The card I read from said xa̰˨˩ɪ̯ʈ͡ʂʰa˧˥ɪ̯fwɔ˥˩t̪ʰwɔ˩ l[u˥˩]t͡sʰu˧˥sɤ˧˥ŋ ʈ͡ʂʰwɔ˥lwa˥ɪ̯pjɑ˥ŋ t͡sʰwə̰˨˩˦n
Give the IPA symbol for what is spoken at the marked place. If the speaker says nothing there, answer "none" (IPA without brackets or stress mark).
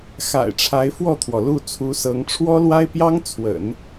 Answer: u˥˩